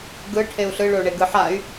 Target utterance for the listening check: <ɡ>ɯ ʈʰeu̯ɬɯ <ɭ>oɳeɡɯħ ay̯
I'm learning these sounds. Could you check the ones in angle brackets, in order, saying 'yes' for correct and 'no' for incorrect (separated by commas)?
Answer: yes, yes